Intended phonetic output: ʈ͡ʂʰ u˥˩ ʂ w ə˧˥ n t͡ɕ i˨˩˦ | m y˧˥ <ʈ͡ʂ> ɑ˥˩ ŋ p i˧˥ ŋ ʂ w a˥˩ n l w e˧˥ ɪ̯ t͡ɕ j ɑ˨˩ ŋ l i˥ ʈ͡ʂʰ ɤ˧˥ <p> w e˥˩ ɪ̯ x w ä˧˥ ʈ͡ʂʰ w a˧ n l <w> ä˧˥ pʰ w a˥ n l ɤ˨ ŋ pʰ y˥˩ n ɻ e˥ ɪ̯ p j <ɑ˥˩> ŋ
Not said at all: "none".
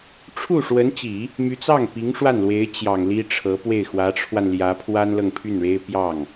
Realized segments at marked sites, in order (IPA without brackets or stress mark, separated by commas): t͡s, p, j, ɑ˥˩